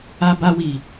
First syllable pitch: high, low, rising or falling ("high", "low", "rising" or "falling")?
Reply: high